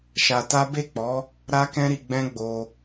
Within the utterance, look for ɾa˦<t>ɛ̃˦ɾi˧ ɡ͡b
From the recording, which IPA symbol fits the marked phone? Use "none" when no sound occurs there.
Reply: k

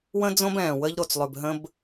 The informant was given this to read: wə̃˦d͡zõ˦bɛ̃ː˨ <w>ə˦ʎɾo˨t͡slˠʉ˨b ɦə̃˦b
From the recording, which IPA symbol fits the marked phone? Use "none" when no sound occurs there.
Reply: w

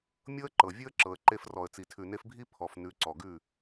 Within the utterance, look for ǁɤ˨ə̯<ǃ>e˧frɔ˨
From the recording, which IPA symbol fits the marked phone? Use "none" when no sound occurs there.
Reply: ǃ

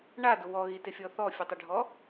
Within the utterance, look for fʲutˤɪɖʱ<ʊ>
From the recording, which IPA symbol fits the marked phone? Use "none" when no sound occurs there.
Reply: ɔ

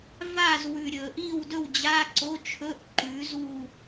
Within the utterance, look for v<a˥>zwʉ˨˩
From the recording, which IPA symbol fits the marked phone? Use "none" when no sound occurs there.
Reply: a˥˨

